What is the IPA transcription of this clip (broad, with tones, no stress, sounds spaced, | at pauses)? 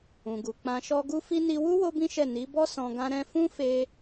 ũ˨ ɡ u˨ k͡p ã˧ ʃ ɔ˦ ɡ u˧ f i˧ n i˧ w u˦ w o˦ b ĩ˦ ʃ ɛ˦˨ n i˨˦ b ɔ˦ s ɔ̃˧ ɡ ã˦ ɾ ɛ̃˦ f ũ˦ f e˧